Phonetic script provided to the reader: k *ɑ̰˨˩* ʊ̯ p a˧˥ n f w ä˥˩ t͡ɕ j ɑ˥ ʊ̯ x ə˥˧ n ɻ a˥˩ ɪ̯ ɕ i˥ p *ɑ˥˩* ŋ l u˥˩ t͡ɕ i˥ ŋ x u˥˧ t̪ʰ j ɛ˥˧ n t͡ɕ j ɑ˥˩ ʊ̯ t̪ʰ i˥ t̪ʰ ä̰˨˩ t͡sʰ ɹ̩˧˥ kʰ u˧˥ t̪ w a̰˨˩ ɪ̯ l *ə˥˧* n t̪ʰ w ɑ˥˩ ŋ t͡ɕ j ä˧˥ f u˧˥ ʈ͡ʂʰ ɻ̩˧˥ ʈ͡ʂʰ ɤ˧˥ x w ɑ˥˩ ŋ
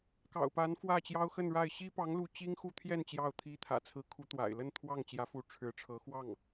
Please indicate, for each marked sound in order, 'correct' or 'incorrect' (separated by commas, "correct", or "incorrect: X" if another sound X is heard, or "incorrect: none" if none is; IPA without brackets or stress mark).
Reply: correct, incorrect: ɑ˧˥, correct